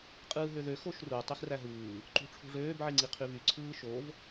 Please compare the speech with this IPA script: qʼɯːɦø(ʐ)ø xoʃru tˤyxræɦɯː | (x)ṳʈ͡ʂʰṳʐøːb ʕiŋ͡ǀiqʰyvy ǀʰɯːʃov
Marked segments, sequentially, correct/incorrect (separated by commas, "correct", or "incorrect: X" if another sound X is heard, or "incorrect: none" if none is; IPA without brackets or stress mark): incorrect: ð, incorrect: ǃ